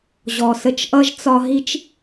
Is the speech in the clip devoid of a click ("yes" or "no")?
yes